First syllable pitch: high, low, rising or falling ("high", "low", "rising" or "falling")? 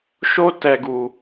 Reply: high